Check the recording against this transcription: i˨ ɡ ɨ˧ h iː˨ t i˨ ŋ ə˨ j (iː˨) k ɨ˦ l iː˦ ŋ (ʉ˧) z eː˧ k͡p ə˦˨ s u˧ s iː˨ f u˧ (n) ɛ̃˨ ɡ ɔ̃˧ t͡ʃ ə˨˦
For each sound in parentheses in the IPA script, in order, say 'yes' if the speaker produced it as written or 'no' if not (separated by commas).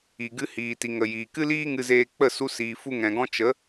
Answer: yes, no, no